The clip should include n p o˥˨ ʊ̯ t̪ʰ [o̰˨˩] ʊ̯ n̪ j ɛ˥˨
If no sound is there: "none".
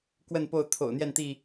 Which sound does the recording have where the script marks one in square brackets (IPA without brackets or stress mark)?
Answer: o̰˨˩